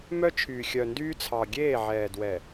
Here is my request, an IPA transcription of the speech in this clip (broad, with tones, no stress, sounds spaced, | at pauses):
m œ˦ t͡ʃʰ yː˨ xʲ œ˨ n d yː˦ t͡sʰ ɑ˨ ɡʲ eː˦˨ ʕ ɛː˨ d w ɛ˨